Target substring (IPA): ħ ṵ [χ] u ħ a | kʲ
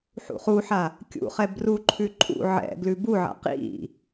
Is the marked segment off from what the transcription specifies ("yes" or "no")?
no